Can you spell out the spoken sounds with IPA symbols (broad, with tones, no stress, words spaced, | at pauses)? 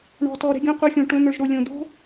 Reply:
ɳɔ̤˧tɔ˧ɾɛ̤˦ɡʲõ˦ qʷə˞˦xʲõ˧ʈõ˦ n̪ə˞˧ʒɾo˧lʲõ˧ d̪o̤˦